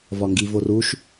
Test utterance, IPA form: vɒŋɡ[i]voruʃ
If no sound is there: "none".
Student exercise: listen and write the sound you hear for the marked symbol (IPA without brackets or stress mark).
i